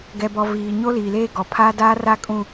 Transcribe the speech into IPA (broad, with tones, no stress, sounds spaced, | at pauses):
ɡ ɛ˨ b ɔ˨ v iː˨ ɲ o˦ l iː˨ l eː˦ ɡ ɔ˨ pʰ aː˦ d aː˦ r a˦ kʼ ũ˦